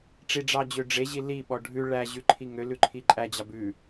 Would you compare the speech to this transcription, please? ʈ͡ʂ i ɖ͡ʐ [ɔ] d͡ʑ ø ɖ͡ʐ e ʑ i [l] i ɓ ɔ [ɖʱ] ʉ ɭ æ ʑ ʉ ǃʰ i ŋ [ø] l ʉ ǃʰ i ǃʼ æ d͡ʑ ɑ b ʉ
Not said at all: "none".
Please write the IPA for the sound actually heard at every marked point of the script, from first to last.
ɑ, l, ɖʱ, ø

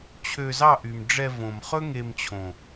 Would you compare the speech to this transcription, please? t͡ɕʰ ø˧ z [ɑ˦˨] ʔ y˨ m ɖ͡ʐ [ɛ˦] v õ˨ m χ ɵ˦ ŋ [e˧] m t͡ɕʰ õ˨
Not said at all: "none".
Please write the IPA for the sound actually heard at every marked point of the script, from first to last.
ɑ˦˨, ɛ˧, e˧

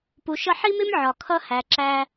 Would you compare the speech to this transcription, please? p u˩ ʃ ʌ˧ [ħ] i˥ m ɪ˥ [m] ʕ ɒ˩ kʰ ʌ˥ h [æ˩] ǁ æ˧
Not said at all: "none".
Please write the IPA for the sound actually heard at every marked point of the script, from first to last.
ħ, m, æ˩

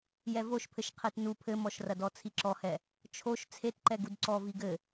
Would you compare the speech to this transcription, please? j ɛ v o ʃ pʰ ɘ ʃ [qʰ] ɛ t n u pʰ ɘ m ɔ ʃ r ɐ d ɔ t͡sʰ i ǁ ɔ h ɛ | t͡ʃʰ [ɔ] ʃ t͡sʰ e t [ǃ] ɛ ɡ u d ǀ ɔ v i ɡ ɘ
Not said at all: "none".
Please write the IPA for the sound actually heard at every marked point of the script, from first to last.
qʰ, o, ǃ

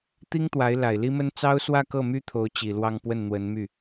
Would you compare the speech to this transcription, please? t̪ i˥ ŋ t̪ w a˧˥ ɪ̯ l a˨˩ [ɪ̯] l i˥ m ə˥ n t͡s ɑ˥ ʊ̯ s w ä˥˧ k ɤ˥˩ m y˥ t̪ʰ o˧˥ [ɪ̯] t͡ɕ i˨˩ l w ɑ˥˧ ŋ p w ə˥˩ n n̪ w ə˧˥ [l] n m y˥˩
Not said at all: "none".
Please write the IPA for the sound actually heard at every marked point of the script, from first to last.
ɪ̯, ʊ̯, none

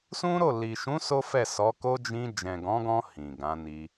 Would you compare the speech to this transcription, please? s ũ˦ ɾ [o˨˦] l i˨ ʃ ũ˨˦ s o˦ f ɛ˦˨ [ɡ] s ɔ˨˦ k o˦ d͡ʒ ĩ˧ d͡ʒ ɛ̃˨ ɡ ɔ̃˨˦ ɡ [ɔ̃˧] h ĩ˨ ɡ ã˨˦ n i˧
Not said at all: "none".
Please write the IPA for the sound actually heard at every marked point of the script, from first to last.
o˦˨, none, ɔ̃˧

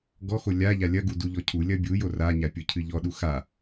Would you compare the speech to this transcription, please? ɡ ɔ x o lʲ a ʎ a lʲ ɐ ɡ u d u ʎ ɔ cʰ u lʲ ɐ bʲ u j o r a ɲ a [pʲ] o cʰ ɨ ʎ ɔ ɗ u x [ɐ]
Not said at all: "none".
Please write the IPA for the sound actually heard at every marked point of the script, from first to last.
pʲ, a

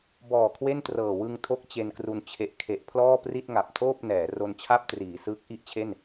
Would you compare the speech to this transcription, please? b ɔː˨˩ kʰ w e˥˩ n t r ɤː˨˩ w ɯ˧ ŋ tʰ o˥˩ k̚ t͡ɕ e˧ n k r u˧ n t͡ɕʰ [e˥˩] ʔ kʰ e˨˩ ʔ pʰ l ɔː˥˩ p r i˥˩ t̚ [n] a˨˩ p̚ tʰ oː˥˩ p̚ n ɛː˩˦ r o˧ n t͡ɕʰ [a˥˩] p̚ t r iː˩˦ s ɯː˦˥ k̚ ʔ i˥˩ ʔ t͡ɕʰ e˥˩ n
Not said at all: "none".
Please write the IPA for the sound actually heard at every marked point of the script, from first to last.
e˨˩, ŋ, a˥˩

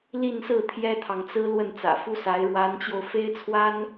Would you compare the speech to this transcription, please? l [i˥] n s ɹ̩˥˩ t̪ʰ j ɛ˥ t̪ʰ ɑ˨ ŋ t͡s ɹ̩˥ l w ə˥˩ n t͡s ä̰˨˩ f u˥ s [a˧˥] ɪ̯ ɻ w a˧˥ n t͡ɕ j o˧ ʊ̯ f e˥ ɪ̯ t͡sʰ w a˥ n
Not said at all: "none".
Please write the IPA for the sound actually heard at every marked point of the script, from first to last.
i˥˧, a˧˥

